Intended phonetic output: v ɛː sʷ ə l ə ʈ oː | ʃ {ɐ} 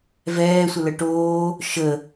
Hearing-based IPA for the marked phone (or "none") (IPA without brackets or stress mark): ə